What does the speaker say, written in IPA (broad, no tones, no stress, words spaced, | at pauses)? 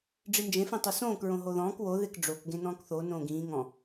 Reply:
ɖ͡ʐind͡ʒẽ fĩtˤusõːk ɹõɦoðɔ̃ːk wo ðekɖ͡ʐok ɡẽnɔ̃ːkθo nõːɡĩː ŋɔ̃